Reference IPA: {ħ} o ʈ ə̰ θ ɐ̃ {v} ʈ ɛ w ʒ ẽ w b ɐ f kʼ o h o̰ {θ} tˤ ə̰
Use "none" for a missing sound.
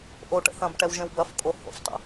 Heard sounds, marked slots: ʔ, b, f

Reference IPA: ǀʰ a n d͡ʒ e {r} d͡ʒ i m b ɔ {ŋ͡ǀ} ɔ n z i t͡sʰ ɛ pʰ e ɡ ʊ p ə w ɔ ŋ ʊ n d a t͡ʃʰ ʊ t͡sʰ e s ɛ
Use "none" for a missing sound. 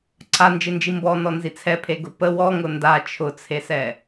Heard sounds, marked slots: n, n

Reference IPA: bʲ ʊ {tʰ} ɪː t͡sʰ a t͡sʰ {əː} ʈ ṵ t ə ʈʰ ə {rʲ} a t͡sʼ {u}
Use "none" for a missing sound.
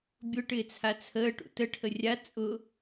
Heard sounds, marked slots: ʈ, əː, rʲ, ʊ

